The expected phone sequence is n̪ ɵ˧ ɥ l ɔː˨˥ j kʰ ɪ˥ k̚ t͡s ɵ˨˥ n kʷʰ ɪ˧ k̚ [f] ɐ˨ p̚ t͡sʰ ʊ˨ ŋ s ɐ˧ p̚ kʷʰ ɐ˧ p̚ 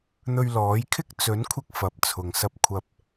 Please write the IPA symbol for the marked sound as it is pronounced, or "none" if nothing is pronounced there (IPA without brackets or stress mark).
f